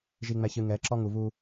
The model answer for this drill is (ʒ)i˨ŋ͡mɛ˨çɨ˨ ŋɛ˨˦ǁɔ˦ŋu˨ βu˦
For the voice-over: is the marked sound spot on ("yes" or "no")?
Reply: yes